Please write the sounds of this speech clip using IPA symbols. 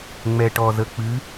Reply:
ŋ͡m ɛ˩ ʈ ɔ˩ z ə˩ k͡p ɨ˩˧

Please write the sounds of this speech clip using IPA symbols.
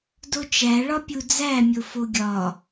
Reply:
d o t͡ʃ æ ɭ ɒ pʲ u d͡z æ mʲ o f o ɡʲ ɒ

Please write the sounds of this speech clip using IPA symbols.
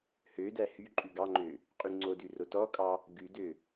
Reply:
h ø d æ h y ǃʼ ʉ ɡ ɑ ŋ͡ǃ ø | qʼ y ŋ͡ǀ o d ʉ r o t ɔ kʼ ɑ | ɡ ʉ d ø

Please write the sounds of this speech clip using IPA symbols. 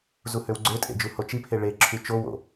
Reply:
z u h ø w ɡ͡ǀ ø tʼ ḛ d͡ʒ u h o t͡ʃ i pʰ e ɭ e ǁʰ y t͡ʃ o w o̰

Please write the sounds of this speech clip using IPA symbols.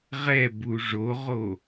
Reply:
ʁ ɛ b u ʐ o ʁ o

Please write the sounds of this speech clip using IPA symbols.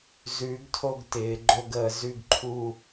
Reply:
z ʉ˩˧ ɡ tʰ o˥˧ ɡ t ɪː˩˧ ɡ͡ǃ o˥˧ ɡ əː˩˧ z ʉ˥˧ ɡ ǃʰ u˥˧

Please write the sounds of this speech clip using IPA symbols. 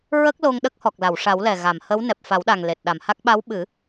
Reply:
ɹ ə˦˥ k̚ l o˧ ŋ ɗ ə˦˥ k̚ h ɔ˨˩ k̚ l a˨˩˨ w ʂ a˨˩˦ w l ɛ˨˩ ɣ a˨˩˨ m h ə˧˥ w n ɛ˨˩ p̚ f a˨˩˦ w ɗ a˨˩ ŋ l e˨˩ t̚ ɗ a˨˩˨ m h a˦˥ k̚ ɓ a˧˥ w ɓ ɨ˨˩˦

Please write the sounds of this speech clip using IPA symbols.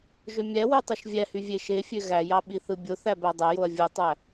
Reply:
ʒ ø mʲ æ w y tˤ u ʃ vʲ æ h y vʲ e ʃ e fʲ ø ɣ æ j ɑ ɓ i θ ɯ bʲ o θ æ b æ dˤ æ j o ɐ̯ vʲ u tˤ æ

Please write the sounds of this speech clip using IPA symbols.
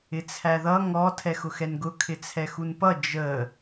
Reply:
ɪ t͡sʰ æ ð ʌ ŋ ɔ tʰ ɛ x ʊ x ɛ n ɡ ʊ kʰ ɪ t͡sʰ ɛ x u n p ʌ d͡ʒ ə

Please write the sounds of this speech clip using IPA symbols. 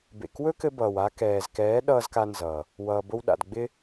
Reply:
b ḛ˨ k w ɵ˦ k ɘ˧ b ʌː˨ w a˦ k ɛː˨ z k ɛː˨˦ ɗ ʌː˦ z k a˦ n z ʌː˨ | w ʌː˨ b o˧ w ɗ a̰˨ d ɡ͡b ɪ˦

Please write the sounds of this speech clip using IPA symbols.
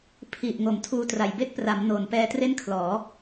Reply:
pʰ i˨˩ ʔ ŋ o˩˦ m tʰ uː˧ t r a˨˩ j b e˥˩ k̚ p r a˩˦ m n oː˩˦ n p ɛː˧ t r e˥˩ n kʰ l ɔː˩˦

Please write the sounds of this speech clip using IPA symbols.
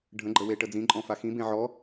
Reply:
ɖʱ ə̃ ɡ͡ǃ ə w e ʈ ə d͡z ĩ ǃʼ ɔ̃ f a x ĩ b ẽ ʕ ɔ

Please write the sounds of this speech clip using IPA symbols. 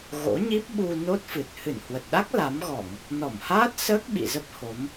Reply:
ɣ o̰˧˥ ɲ i˦˥ p̚ ɓ u˧ n o˦˥ t̚ f ɨ˨˩ t̚ h ɨ˧˩ n h w ə˨˩ t̚ ɗ a˦˥ k̚ l a˨˦ m ɣ ɔ˧˩˨ ŋ | n ɔ˧˩ m h aː˦˥ t̚ s əː˦˥ k̚ ɓ ḭ˧˨ z ə˦˥ p̚ h o˨˦ m

